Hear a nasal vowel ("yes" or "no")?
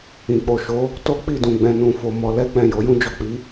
yes